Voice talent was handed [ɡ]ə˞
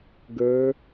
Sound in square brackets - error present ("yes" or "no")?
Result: no